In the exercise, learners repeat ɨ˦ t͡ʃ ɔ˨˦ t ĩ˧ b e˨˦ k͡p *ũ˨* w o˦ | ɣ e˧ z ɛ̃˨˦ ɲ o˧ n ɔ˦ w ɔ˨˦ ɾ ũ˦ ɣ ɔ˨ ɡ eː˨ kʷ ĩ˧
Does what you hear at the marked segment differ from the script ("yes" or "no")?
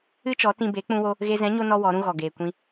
yes